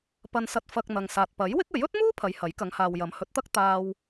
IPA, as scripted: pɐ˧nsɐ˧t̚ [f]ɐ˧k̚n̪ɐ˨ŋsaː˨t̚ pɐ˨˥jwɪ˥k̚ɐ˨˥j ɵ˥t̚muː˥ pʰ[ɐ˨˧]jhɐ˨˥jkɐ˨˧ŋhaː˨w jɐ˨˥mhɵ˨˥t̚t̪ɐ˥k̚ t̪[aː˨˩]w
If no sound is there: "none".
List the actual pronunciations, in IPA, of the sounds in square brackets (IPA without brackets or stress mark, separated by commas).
f, ɐ˨˧, aː˧